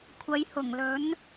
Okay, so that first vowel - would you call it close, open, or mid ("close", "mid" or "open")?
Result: open